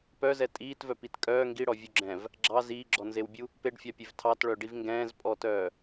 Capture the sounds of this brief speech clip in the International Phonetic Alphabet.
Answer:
p œ z ɛ tʼ iː t v œ p i t kʼ œː ŋ ɡ i ɽ ɔ vʲ u ɡ͡ǁ ɛ̃ v | ɡ͡ǁ ɑ z iː ɡ͡ǁ ɔ n z e w bʲ u | p e ɖ fʲ ɑ pʲ e v tʰ ɑ t ɭ œ ɖ i v ŋ ɡ ɛ̃ː z pʼ ɔ t œː

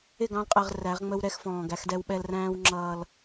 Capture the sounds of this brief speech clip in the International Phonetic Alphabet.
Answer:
ɪ˦˨ ɡ ɑ̃˦ l qʼ ɛ˨ ʁ r æ˨˦ ʁ ŋ͡m ə˦ w ɾ ɛ˦ x f ɔ̃ː˨ ɡ æ˨˦ x d ɛ˦ w ɓ ɛ˦ l r æ̃ː˦ w ŋ͡ǁ ʌː˦ l

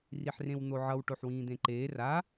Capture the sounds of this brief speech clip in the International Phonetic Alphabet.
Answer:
r i ħ r ẽ w n̪ o ʕ ʌ w ʈ o ħ w ĩː d̪ ẽ ǃ eː r a

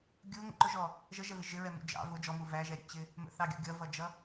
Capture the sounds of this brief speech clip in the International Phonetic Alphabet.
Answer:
ɡʲ u ŋ ə̰ ǃ ʊ ʒ ɔ | ʒ ə ʒ ɛ v ɪ ʒ ɪ ɹ ɛ m ṵ d͡ʒ ɑ̰ v ʊ d͡ʒ ɔ m u v æ ʒ ɛ ɾʲ ṵ t͡ɕ ɪ | m ə̰ θ ɑ ɡʲ ṵ ɡʲ ʌ v ʌ d͡ʒ ʌ

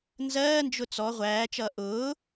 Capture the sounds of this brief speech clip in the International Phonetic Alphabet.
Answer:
n z ɜː n d͡ʒ ʊ t͡s ɔ ʁʷ æː t͡ʃ ʌː ʔ ʊː

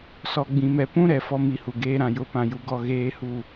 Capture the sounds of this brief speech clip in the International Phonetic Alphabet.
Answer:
s ɔ˨ ɡ͡b ĩ˨ m ɛ˨ p ũ˦ ɾ ɛ˨ f ɔ˦ m i˨˦ h u˨ ɡ eː˦ ɾ ã˨ j ʊ˨˦ p ã˨ j u˨ ɡ ɔ˦˨ ɣ eː˦ h u˦˨

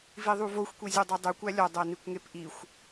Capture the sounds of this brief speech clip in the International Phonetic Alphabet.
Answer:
v i ðˤ u v o xʷ kʷ i zʲ u dˤ e dˤ u kʷ æ lʲ ɒ dˤ æ n i kʷ ŋ e p ʔ i xʷ

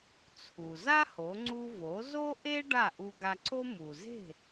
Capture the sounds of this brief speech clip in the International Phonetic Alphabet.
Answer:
t͡sʰ u˩ z a˥ h o˩˥ ŋ͡ǀ u˧ v o˩˥ z o˥ ʔ e˥ ɖ a˥˩ ʔ u˧ ɡ a˧ ǀ o˥ m u˩ z e̤˥˩

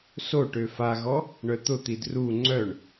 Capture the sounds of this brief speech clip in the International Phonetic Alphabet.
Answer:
s o ʈ ø f a ɣ ɔ | ɳ œ t̪ ʊ t̪ i d r u ŋ͡ǀ œ ɳ

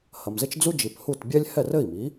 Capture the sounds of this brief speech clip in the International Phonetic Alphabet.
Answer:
h ɐ˩ m z ɘ˥ t͡ʃ d͡z u˥ d͡ʒ i˩ p h u˥˩ t bʲ ɛ˥ lʲ h ɛ˥˩ r ɘ˥˩ i̯ m i˩˥

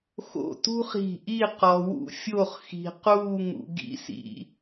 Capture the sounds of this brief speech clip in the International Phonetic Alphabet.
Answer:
x o̰˧˩ t ṳ˥ χ i̤˧˩ ʔ i˥˧ q ɔ˧ w ṵ˥˧ fʲ o˥˧ χ x i̤˧ q uː˥˧ ŋ ṵ˧ ɡ ḭ˥ s ḭ˧

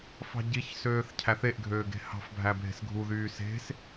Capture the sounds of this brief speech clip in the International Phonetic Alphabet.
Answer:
f ɑ̤ ɟ i ç s øː θ cʰ æ θ e ʔ ɡʱ øː ɡ e̤ h ɑ̤ f bʱ æ bʱ e̤ s ɡʱ u ð yː s e̤ s

